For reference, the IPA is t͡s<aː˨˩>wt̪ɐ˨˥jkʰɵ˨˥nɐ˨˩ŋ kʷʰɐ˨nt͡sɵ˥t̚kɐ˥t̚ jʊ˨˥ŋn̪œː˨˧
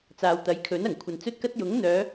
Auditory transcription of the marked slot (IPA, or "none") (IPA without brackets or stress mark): aː˨